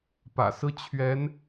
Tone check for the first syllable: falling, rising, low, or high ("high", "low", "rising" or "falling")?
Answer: low